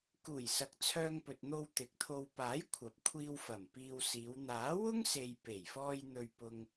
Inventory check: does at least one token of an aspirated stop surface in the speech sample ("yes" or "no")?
yes